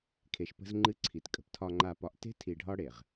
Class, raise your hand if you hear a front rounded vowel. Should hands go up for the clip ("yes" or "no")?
no